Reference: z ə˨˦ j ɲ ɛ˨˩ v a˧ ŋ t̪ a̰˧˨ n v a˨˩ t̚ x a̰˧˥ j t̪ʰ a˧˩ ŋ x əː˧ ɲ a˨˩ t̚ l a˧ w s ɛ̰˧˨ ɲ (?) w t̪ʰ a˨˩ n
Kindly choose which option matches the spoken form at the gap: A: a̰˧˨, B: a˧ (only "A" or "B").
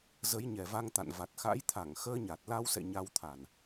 B